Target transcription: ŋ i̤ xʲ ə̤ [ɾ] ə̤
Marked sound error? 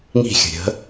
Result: yes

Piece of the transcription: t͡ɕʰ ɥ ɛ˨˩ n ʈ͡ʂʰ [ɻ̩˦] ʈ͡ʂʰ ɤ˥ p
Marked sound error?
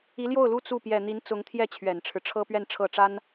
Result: no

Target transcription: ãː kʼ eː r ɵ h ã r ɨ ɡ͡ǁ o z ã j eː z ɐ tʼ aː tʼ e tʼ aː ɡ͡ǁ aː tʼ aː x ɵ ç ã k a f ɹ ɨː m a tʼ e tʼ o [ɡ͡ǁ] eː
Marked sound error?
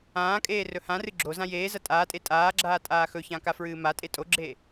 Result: no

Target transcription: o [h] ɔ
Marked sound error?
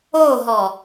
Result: yes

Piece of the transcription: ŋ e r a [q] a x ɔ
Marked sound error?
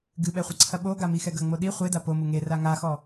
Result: yes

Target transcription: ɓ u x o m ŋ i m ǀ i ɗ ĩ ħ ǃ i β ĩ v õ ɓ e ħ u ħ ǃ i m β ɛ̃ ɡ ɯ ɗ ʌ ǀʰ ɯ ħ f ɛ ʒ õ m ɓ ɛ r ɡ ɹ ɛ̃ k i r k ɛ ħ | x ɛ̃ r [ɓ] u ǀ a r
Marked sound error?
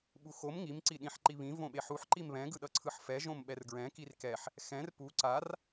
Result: yes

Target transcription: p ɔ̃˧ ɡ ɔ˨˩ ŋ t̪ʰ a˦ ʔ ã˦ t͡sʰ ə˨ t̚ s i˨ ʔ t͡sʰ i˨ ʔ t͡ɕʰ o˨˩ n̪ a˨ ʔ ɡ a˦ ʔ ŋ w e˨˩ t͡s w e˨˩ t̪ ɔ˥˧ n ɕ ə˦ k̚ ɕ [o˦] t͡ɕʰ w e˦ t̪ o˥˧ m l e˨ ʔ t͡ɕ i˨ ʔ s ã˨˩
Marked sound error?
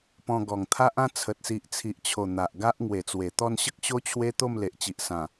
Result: no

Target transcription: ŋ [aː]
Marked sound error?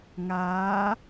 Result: no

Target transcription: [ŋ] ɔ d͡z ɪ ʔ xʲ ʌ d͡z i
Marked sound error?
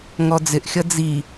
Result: no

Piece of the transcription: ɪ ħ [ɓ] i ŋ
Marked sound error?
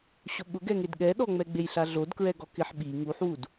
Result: no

